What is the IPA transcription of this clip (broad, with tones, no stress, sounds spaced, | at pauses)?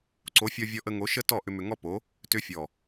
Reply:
ǀ o˨˦ fʲ ɔ˧ vʲ ɔ˧ ʔ ə˧ ŋ o˨˦ ʃ ə˦ t ɔ˦˨ ʔ ʏ˧ m ʏ˧ ŋ ɔ˦ p o˨˦ | t ʏ˧ fʲ ɔ˨